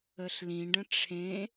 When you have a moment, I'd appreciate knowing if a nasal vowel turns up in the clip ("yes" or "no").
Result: yes